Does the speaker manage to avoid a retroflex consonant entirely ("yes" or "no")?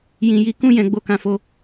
yes